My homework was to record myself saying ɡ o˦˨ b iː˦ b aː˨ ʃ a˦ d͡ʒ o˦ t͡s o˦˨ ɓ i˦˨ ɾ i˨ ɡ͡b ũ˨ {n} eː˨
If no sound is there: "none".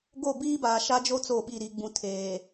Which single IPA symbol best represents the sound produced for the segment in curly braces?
tʰ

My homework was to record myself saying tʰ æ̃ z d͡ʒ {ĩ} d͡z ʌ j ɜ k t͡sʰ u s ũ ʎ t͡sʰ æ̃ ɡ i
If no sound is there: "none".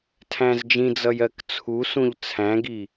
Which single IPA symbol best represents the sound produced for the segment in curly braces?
ĩ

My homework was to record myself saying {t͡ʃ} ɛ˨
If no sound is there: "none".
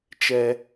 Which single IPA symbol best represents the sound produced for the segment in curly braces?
t͡ʃ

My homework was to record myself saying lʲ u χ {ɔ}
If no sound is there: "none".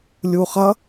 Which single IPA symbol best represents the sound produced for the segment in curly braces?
ʌ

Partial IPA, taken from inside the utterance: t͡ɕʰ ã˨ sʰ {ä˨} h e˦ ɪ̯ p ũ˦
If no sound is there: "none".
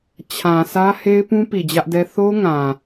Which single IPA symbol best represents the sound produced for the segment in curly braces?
ä˦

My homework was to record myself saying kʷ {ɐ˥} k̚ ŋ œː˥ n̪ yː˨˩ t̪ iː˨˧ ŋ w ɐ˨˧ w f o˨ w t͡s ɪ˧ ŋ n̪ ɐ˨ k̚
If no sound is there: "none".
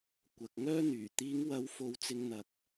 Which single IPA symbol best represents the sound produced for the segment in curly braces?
ɐ˨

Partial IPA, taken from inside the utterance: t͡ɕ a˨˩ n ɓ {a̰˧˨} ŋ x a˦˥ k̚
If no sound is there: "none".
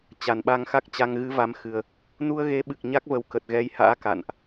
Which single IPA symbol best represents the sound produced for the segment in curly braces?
a˧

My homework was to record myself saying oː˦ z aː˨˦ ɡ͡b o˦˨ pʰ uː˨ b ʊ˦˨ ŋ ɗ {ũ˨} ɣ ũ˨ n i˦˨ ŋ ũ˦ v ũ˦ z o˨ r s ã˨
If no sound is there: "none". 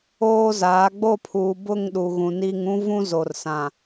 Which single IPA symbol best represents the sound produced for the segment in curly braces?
u˨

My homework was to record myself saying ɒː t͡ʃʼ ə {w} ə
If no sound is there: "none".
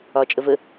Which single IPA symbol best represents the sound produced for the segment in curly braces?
v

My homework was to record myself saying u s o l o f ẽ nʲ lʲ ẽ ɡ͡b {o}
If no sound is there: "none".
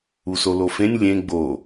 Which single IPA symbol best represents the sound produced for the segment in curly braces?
o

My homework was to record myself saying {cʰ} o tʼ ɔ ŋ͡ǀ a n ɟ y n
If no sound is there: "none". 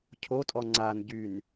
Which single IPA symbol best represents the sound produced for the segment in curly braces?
cʰ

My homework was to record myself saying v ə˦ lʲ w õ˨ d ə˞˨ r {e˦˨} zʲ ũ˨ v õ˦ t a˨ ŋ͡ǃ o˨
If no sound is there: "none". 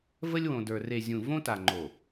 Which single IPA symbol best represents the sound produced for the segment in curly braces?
e˨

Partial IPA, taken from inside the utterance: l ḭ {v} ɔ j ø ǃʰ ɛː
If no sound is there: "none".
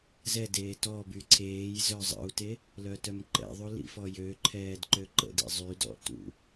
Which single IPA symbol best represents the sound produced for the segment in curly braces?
f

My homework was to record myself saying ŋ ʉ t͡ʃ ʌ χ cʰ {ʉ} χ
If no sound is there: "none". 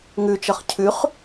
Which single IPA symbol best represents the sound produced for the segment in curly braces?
ʉ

